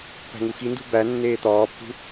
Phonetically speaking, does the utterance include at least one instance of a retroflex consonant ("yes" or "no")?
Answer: no